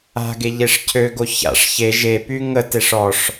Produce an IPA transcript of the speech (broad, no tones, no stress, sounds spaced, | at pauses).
a̤ ɡ e ʎ e ʂ cʰ ø ɡ o ç a̰ ʂ ç e ʒ e p y ŋ ə t e ʂ ɔ ʂ